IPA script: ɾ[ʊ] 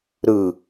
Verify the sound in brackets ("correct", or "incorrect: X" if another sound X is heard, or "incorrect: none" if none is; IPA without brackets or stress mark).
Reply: incorrect: ɯ